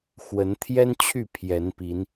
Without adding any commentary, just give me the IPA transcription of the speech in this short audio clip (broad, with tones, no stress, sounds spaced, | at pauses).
x w ə˨˦ n t̪ʰ j ɛ˦ n t͡ɕʰ y˥˨ pʰ j ɛ˨˦ n p i˨˦ n